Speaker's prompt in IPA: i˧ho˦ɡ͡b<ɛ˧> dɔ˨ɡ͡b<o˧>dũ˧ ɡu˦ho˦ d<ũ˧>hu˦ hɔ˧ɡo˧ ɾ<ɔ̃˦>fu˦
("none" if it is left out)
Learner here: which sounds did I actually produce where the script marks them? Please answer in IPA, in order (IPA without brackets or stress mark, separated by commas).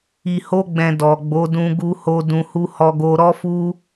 ɛ̃˧, o˨˦, ũ˧, ɔ˦